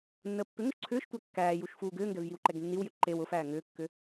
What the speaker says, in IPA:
nːəːpːʏŋʊʃ ǀʰʏːʃtʷæ kːæːjuʃ fuːɡʏːŋɡɛv jiwǃɛɡnːiwjʏ ǃew ʊfæː ŋʏːkːʏ

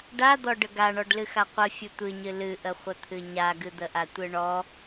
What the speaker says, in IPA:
ɖad̪ɔ ɖəɡa ɳɔɖlɨxaqʷɨ fʲɨtʷɨɲɨ lɨʔəχʷət̪ʰɨ ɲaɡɨd̪əʔa tʷɨɳɔ

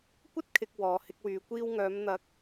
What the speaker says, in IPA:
kʷɐ˥t̚ kʰɪ˧k̚ wɔː˨˧hɪ˧k̚wyː˨˧ kʷiː˧wŋœː˨˧mn̪ɐ˨˥k̚

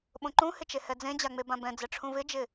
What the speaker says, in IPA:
ɓõǃũhɪt͡ʃe hɛd͡zẽd͡ʑaŋ͡me bãbɛ̃d͡zɛ ʈ͡ʂʰũvɪd͡ʒɪ

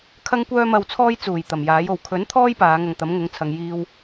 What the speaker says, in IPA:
kʰɐ˥ŋkʷœː˥mɐ˧wt͡sʰɔː˥j t͡suː˨˩j t̪ɐ˨˩mjaː˨˥j o˨˩wkʰɵ˨˥nt̪ʰɔː˥j paː˨˧ŋɐ˧ŋt̪ɐ˨˥m ŋʊ˨˧ŋt͡sʰɐ˨ŋ jiː˧w

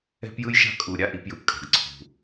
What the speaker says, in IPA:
ɛ̤˦pjɯ˦jʃa̤˦ kʼu˨ ɾʲa˦ʔi˨˦pjɯ˨pkʼa̤˨ɡ ǀʰṳ˨

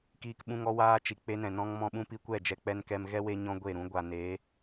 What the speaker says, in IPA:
kiː˧kɓũ˧ŋ ɔ˦ waː˦t͡ʃi˨ k͡pe˧nɛ̃˨nɔ̃˧ŋ mɔ̃˧ɓũ˦pi˧kʷɛ˦˨ d͡ʒɛ˧k͡pɛ˧nkɛ˧m ɣɛ˦we˧ɲɔ̃˧ ɡʷe˦˨ɾũ˦ ɡʷa˨ne˨˦

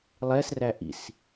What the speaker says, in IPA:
lˠɛs ræʔḭs

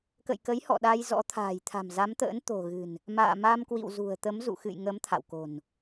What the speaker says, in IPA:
kə̰˧˨jkə˨˦jhɔ̰˧˨ ɗa˧jzɔ̰˧˥ t̪ʰa̤ː˨˩jt̪ʰa̤˨˩mza˨˦mt̪ə̰ː˧˥n t̪o̤˨˩ɣɨ̤˨˩n | ma̰ː˧˨ma˧mkwḭ˧˨wzṳ˨˩ə̯ t̪ə˨˦mzṵ˧˨xɨ̰˧˨j ŋə˨˦m t̪ʰa̰˧˨wko̤˨˩n

